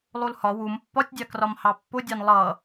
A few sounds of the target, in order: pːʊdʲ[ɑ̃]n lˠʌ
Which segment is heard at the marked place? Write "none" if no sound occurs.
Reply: ɑ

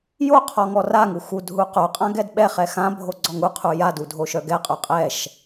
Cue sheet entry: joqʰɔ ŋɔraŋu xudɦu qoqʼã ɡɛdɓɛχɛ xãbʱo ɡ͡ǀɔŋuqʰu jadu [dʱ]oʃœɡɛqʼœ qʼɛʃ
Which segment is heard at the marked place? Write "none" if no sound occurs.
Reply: dʱ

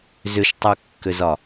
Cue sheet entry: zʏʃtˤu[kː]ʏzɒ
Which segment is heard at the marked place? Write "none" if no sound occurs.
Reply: kː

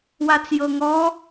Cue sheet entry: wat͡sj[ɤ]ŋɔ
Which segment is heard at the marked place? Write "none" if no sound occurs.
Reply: ɤ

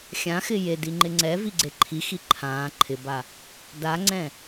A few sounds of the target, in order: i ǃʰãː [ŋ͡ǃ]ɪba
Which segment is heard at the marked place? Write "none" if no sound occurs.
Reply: ǃʰ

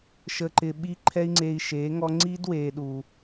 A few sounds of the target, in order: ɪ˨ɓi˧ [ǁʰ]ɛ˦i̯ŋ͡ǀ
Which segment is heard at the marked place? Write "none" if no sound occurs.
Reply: ǃʰ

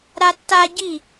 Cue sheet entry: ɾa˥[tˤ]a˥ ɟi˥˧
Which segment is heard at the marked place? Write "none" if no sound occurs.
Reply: tː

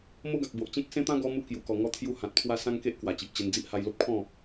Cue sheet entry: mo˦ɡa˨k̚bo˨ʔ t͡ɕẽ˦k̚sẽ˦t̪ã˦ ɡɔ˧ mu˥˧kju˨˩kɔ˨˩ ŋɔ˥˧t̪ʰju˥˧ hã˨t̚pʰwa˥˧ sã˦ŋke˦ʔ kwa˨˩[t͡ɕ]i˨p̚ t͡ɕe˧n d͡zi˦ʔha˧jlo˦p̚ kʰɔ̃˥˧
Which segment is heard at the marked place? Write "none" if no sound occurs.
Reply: t͡ɕ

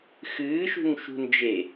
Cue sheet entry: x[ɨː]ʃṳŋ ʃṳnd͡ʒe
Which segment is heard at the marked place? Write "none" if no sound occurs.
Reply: ɨː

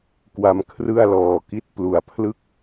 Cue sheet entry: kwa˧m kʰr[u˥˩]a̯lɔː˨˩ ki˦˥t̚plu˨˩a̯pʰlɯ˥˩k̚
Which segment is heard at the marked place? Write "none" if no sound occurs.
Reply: ɯ˥˩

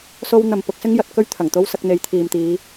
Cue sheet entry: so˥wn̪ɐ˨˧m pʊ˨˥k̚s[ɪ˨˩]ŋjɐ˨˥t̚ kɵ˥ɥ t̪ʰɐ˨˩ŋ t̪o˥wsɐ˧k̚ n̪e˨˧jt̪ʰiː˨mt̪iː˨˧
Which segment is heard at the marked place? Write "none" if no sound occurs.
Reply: ɪ˥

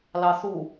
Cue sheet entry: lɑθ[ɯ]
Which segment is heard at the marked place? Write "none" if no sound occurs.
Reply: u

